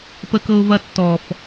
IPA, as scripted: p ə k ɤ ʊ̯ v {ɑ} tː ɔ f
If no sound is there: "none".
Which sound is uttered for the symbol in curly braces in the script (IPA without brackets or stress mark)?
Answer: ɐ